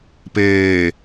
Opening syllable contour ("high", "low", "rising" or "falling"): low